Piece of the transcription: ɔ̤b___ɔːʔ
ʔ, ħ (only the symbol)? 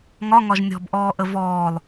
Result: ʔ